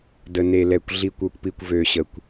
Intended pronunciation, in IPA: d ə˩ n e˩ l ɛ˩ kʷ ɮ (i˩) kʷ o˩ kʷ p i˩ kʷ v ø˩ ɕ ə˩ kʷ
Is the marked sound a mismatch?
no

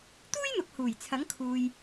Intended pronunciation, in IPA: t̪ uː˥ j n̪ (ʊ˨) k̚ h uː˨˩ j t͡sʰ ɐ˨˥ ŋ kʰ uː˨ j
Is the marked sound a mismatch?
no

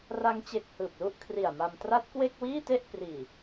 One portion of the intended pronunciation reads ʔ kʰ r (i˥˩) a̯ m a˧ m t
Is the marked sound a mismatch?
yes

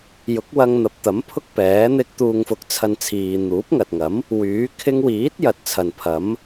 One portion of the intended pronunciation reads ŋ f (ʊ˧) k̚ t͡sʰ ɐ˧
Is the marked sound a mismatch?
no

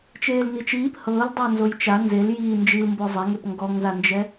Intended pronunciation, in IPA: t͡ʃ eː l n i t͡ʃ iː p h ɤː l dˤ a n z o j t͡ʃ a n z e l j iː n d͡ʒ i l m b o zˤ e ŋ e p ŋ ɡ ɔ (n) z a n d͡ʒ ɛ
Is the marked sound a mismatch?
yes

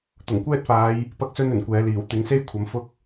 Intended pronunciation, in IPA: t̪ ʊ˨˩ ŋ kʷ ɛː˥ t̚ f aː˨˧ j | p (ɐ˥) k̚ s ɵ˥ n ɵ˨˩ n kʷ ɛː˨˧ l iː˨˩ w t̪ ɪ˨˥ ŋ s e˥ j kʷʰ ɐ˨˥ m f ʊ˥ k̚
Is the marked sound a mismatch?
no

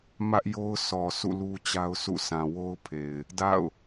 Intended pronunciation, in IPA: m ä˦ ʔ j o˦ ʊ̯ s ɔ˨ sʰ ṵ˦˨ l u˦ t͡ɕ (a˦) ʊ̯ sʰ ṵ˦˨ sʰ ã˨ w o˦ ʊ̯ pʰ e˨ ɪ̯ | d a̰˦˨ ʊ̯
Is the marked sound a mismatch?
no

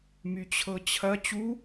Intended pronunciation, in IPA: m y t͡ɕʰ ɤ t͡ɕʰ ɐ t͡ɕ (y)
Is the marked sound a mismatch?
yes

